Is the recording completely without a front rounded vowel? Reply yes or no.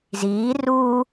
yes